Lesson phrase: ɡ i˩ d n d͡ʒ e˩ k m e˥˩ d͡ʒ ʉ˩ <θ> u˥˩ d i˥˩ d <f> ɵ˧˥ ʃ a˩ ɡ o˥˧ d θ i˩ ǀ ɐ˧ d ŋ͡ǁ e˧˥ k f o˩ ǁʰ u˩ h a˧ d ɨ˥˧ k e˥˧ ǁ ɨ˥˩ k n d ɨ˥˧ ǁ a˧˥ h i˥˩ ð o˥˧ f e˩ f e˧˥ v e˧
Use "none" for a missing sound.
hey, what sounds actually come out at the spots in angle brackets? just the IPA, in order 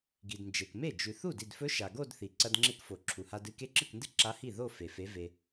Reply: θ, f

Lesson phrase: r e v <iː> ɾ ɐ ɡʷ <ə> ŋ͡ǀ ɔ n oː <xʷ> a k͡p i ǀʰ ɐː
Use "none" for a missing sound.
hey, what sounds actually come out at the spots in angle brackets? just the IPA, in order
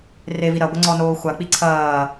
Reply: i, ə, xʷ

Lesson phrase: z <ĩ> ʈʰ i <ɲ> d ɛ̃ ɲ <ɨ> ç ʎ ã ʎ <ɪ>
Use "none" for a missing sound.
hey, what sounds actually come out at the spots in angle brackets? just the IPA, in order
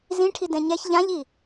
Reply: ĩ, none, ɛ, i

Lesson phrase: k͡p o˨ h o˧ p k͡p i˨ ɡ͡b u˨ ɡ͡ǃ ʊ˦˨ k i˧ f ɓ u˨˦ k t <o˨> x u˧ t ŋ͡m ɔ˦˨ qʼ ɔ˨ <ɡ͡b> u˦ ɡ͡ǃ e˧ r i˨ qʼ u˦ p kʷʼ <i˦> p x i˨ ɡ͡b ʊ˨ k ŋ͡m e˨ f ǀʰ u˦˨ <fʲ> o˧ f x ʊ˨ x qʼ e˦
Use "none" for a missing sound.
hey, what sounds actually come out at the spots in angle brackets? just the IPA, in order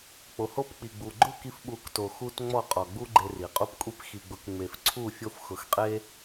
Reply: o˨, ɡ͡b, i˦, fʲ

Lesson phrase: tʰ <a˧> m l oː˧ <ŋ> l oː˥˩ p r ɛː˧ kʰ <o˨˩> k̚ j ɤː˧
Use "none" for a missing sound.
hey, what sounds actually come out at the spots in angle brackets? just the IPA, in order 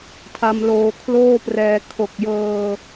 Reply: a˧, kʰ, o˨˩

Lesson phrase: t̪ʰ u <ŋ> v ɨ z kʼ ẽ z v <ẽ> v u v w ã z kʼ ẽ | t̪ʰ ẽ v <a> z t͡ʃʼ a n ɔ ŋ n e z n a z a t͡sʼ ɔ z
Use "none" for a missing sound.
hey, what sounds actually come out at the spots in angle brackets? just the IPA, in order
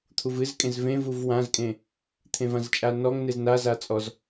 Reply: none, ẽ, ã

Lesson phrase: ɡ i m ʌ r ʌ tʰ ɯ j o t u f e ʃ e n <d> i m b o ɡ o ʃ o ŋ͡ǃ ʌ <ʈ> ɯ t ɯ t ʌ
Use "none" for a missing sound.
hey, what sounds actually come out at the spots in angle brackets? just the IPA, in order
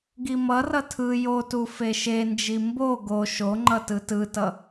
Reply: d͡ʒ, t

